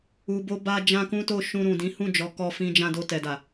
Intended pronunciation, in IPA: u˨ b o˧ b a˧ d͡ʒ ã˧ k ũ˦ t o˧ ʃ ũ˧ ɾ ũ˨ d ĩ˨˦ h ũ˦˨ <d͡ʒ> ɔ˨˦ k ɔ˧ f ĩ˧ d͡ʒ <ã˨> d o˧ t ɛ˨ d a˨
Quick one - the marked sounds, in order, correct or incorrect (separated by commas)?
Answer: correct, incorrect